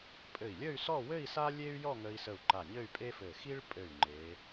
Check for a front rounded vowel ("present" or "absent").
present